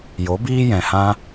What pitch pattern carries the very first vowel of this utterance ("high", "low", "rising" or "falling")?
rising